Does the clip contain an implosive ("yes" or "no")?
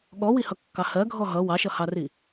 yes